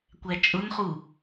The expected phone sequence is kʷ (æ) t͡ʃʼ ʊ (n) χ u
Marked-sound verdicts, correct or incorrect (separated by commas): correct, correct